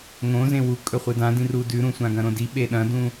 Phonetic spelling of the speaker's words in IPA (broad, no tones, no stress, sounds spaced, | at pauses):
ŋ õ z ẽ w u kʼ ɵ χʷ ɨ d ã d ĩ r u d ʉ ɾ ũ sʷ ã ɡ ɐ̃ ɾ õ d i ɓ e ɗ ɐ̃ d ũ